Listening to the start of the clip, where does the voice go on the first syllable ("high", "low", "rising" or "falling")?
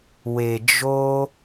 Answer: low